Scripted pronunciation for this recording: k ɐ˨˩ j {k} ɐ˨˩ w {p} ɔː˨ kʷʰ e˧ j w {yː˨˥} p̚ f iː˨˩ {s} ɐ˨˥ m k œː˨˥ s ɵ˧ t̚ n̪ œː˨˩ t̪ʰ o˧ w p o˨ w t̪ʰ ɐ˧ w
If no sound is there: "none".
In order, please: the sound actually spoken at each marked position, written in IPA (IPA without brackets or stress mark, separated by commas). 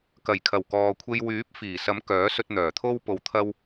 kʰ, k, yː˨˥, s